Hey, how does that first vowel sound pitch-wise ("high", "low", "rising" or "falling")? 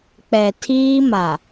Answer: low